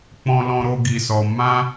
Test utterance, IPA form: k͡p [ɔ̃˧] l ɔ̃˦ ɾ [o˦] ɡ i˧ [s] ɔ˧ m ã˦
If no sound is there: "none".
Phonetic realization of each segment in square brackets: ɔ̃˧, o˦, s

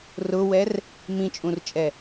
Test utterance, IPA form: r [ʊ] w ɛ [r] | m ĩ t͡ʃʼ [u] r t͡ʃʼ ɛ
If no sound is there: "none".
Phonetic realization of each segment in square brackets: ʊ, r, ũ

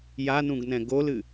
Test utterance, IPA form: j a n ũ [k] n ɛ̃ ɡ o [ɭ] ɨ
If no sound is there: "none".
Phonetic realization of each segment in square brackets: ɡ, l

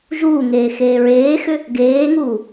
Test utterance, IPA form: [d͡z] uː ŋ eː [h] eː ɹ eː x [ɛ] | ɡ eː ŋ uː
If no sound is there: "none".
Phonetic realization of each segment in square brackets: ʒ, x, ʏ

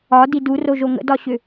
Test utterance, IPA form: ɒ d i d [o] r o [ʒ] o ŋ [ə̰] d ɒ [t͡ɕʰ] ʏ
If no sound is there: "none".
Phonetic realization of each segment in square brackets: u, ʒ, ə̰, ɕ

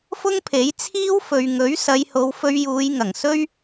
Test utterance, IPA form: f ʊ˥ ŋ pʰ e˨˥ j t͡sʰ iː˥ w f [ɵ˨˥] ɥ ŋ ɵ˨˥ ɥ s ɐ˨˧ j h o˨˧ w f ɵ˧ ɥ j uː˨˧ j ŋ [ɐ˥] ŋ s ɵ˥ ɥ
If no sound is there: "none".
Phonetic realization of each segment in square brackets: ɵ˨, ɐ˨˩

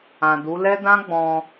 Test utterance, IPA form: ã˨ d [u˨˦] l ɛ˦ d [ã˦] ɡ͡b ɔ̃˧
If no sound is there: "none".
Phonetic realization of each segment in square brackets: u˨˦, ã˦

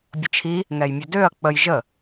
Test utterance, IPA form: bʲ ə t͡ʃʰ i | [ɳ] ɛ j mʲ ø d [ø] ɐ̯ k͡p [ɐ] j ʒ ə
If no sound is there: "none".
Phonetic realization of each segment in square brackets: ŋ, ø, ə

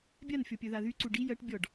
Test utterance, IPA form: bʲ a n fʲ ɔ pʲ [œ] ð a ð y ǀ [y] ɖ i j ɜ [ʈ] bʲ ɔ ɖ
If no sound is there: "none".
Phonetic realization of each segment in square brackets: œ, u, ʈ

